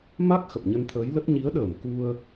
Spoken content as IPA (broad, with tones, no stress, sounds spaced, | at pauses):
m a˦˥ k̚ x ə˨˩ p̚ ɲ ə˧ n t̪ʰ əː˨˦ j l ə˦˥ t̚ ɲ i˨˦ ə̯ ɗ əː˧˩ m k u˧ ə̯